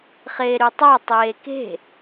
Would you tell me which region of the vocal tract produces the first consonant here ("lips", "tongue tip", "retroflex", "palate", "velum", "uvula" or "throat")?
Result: uvula